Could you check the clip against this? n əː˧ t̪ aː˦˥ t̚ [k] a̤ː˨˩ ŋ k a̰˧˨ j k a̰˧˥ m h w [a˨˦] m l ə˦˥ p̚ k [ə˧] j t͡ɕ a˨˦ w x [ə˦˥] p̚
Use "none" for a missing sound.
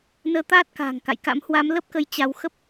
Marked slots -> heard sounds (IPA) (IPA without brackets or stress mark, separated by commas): k, a˨˦, ə˧, ə˦˥